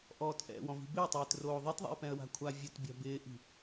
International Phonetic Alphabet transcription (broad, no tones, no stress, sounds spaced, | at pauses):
ʔ ɔː t ʔ ɛ̰ w ɔ̃ v i̤ b ɪ ʊ̯ tˤ ɪː t r oː ðˤ e t ðˤ ɛ̰ ɪ̯ p ɛ̃ ə̯ w a̤ kʷʰ a vʲ ʊ t bʲ a̤ b ɪː ʔ i̤